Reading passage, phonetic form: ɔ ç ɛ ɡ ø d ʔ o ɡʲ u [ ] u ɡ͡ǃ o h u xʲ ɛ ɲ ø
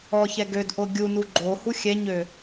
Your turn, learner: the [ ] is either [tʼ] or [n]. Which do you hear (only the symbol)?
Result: n